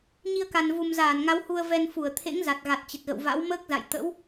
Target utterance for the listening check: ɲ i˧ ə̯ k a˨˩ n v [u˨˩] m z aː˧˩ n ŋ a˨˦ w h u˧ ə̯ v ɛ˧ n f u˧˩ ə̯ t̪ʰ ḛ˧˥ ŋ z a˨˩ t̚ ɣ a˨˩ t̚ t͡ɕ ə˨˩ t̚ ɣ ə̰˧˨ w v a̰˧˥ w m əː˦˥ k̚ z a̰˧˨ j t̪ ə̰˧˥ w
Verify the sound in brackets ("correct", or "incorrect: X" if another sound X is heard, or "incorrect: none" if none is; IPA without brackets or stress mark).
correct